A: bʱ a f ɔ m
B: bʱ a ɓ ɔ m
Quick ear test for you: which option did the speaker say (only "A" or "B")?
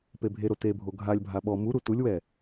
B